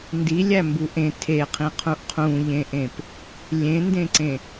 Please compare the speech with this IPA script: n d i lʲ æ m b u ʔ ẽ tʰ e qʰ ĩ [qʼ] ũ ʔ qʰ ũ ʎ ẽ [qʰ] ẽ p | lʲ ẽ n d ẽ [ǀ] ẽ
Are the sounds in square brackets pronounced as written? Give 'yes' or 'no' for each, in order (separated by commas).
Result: no, no, yes